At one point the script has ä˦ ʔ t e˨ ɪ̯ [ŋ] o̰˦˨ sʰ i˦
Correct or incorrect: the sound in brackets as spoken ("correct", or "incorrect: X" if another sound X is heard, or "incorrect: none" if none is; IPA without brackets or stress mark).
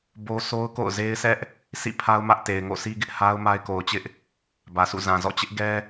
correct